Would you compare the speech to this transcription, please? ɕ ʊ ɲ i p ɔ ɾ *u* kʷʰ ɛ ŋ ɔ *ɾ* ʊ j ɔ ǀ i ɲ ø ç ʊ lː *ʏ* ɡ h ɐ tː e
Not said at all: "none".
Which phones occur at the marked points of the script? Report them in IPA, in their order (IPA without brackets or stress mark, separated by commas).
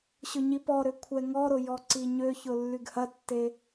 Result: ʏ, ɾ, y